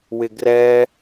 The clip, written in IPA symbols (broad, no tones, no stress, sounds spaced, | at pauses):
w ɪ ɡ r ɛ